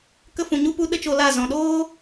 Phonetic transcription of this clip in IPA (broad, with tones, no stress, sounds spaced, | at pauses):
k ə˧ f ũ˨ ɲ u˧ p u˧ ɗ ə˦ t͡ʃ o˧ l a˦˨ z ɔ̃˨ ɗ oː˧